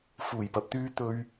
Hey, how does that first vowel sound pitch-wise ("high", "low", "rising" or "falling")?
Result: low